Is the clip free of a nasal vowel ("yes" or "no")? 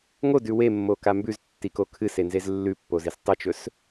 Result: yes